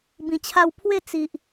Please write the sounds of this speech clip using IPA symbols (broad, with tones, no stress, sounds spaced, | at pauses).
b ĩ˨˩ t͡ɕʰ a˧ w pʰ w e˥˧ t͡s i˨ ʔ